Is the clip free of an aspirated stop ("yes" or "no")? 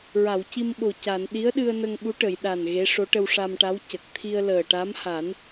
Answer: no